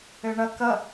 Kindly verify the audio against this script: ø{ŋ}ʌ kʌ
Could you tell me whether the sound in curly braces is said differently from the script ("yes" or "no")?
yes